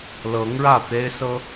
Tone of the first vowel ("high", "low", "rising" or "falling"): rising